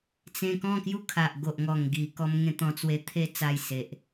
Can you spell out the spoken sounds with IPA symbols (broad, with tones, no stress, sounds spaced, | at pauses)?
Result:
t͡s ẽ˧ k ɔ̃˥˧ k j u˦ kʰ a˨ ʔ ɡ o˨ ʔ ŋ ɔ˨˩ ŋ ɡ i˨˩ k ɔ˧ m ŋ ẽ˥˧ t̪ ɔ̃˧ t͡s w e˧ t̪ʰ e˧ t͡s a˥˧ j s e˨ ʔ